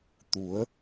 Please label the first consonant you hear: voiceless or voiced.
voiceless